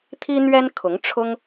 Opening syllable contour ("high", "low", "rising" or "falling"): high